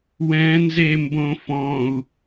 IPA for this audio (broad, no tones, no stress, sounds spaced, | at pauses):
w ɛ̃ n z e m b õ f ɔ̃ u̯